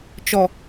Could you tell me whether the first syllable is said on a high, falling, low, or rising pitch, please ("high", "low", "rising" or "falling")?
low